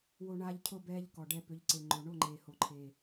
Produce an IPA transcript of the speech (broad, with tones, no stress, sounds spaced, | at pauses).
w o˧ ɳ aː˧ ʎ cʰ ʊ˦˨ b ɛː˧ ʎ k ɔ˨ ɖ ɛ˧ p ʏ˨˦ ʎ ǀ e˨ ŋ͡ǃ o˨ ɳ o˦˨ ŋ͡ǃ eː˨ h o˨ ǃʰ e˨